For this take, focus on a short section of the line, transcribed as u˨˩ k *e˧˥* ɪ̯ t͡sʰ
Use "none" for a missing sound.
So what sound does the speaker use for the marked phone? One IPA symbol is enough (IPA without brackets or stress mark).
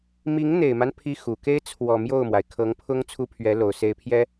e˥